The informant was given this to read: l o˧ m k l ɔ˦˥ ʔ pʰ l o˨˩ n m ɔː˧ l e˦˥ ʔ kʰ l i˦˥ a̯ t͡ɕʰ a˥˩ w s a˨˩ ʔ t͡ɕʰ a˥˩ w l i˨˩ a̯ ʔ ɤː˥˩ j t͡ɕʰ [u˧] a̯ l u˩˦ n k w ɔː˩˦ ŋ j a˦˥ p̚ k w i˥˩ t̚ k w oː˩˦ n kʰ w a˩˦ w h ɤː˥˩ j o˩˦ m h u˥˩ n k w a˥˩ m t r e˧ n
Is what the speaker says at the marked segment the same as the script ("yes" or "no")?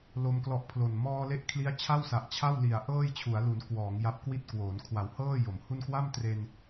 no